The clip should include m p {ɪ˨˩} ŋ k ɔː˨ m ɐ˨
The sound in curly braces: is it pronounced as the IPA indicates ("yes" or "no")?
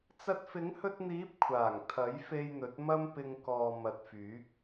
no